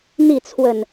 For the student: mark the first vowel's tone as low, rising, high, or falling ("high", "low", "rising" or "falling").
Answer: falling